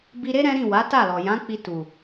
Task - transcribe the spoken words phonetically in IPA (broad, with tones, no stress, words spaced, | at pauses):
bi˧ɾe˦ ɾɛ̃˦ɾĩ˦˨ wa˨˦ta˦˨lɔ˨ jã˨˦k͡pi˧ tu˨